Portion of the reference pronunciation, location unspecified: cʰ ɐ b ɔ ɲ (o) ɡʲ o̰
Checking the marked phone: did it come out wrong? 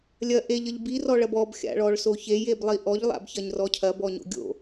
yes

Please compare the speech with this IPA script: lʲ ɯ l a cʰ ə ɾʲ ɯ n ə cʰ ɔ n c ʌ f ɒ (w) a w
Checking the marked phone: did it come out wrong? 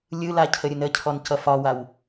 no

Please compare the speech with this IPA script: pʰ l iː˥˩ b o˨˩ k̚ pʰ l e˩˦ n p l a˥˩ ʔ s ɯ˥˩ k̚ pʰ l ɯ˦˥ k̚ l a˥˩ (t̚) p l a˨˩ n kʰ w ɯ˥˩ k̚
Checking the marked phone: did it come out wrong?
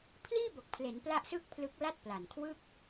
no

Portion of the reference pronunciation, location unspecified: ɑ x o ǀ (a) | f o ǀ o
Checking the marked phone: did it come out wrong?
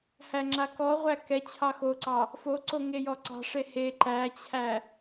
yes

